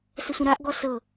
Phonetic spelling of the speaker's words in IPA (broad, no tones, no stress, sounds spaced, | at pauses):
s ə sʷ ə̃ ɾ a ʔ ɡ ɔ s ɤ